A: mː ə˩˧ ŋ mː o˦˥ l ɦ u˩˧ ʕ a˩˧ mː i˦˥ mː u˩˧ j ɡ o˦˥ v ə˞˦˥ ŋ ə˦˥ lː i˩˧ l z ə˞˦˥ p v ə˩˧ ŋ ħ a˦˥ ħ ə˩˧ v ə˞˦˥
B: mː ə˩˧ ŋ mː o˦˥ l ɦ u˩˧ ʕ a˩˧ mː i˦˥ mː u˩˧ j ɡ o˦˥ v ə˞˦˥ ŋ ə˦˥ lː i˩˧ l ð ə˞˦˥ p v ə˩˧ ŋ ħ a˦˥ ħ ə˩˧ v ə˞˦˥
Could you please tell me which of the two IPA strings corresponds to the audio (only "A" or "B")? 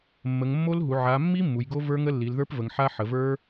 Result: B